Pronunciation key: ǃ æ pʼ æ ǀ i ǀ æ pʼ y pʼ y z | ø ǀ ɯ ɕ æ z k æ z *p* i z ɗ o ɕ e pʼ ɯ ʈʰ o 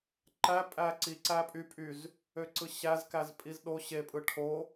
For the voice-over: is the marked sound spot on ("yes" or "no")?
no